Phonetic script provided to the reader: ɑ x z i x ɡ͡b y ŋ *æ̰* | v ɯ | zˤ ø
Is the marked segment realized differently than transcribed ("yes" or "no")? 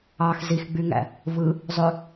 no